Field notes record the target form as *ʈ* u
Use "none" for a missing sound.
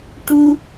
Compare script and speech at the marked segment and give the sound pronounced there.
ʈ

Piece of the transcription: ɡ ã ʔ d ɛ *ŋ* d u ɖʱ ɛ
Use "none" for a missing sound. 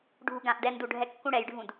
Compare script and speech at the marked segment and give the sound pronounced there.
n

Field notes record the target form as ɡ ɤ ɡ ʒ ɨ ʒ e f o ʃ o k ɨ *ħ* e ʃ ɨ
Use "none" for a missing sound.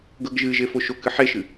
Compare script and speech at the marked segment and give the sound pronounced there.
ħ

